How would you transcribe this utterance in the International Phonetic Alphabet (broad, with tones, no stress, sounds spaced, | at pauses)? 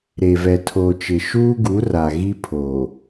ɾ e˨ v ɛ˨ tʰ oː˨ t͡ʃ ɪ˨ ʃ uː˦ ɡ u˨˦ r a˨ ɣ i˦ pʰ oː˨